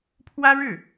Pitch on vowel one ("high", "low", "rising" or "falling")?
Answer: high